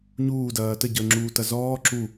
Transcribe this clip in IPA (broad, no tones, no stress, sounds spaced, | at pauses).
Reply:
ɲ uː d ɐː t ə ɟ əː ŋ͡ǁ uː t ɐ z ɔː ǁ u